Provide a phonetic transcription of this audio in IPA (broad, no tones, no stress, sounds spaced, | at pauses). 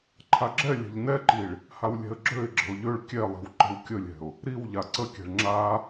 ǃʰ a ɡ͡ǁ ɛ lʲ ɛ̤ ʎ n ɛ ǃ i ɭ | h a w lʲ ɛ̤ ə̯ ɡ͡ǁ ø ɪ̯ ɡ͡ǁ ə̤ ʊ̯ ʎ ø ɭ kʲ ɛ lˠ i̤ w ǃ ə̤ w kʲ ə lʲ ɛ̤ ʊ̯ | ɾ i w ʎ a ǀ ə kʲ ɛ̤ ɭ ŋ͡ǁ a